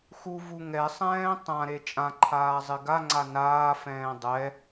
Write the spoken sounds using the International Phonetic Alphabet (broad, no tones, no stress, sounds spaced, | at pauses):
x u v u ŋ ɛ sˤ ɛ̃ː tˤ ã ɾ e t͡ʃʼ ã ǃʰ aː zˤ ɪ ɡ a ŋ͡ǀ a n aː f ɛ̃ː dˤ ɛ